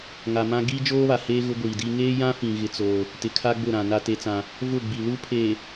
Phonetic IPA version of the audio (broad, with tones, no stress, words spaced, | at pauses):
ŋa˨mã˦ ɡiː˦d͡ʒoː˦βa˨heː˦ ɣʊ˦ɡʷiː˨di˦ ŋeː˦jã˦fĩ˨ ɣɪ˦t͡soː˦ | tɪ˨kʰa˦ɡ͡bʊ˦˨ɾã˨ na˦te˦t͡sã˦ | vʊ˦˨ɡ͡bi˨ lu˦pʰeː˨